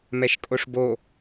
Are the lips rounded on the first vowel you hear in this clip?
no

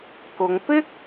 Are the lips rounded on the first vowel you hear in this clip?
yes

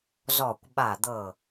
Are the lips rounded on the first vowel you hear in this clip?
yes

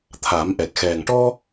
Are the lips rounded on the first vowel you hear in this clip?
no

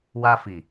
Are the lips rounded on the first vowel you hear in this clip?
no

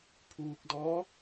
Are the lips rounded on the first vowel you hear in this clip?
yes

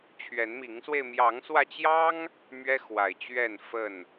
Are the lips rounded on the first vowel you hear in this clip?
no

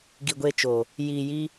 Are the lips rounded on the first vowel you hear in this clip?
no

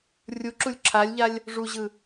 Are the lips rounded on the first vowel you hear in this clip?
yes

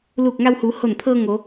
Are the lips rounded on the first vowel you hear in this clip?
yes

